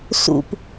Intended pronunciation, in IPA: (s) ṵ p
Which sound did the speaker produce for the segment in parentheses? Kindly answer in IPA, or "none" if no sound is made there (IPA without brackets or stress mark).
s